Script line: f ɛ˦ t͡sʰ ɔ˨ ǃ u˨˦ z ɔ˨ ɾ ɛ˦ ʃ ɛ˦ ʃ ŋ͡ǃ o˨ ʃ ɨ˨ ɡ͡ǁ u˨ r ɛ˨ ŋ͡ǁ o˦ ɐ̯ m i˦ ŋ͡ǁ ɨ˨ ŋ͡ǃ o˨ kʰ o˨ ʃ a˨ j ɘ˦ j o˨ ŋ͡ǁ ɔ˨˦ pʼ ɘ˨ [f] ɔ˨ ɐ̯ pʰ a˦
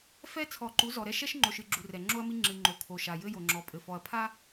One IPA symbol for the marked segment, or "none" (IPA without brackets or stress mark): f